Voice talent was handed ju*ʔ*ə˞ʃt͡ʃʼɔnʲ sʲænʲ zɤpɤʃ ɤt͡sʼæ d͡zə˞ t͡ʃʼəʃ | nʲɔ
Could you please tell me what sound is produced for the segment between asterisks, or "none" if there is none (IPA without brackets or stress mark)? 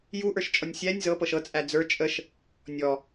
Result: ʔ